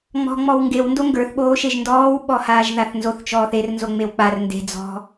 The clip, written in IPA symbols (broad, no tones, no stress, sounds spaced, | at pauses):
ŋ͡m ɔ̤ ŋ͡m ɔ w ŋ ɡ e w n d o ŋ ɡ ə˞ θ ɓ oː ʃ e ʒ n d ɔː w ɓ ɔ h aː ʒ ð a θ n z o θ t͡ʃ ɔː θ e r n z o ŋ͡m e w k͡p a r n d e̤ d͡z ɔ̤